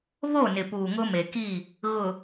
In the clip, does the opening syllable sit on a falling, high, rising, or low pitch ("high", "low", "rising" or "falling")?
falling